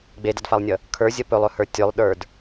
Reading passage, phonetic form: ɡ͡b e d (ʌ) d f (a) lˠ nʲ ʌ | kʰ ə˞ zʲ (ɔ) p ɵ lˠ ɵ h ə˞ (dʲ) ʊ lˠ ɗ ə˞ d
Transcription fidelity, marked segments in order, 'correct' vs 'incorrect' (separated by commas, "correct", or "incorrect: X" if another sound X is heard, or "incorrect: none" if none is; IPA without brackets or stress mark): correct, correct, incorrect: ʌ, incorrect: tʲ